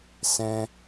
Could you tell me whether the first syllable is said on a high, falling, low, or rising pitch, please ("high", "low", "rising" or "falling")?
high